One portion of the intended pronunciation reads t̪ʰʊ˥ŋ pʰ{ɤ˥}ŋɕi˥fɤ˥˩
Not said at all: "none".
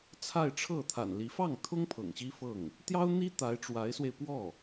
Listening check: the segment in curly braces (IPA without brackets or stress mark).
ɤ̰˨˩